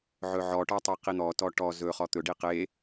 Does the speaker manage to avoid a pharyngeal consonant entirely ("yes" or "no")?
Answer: no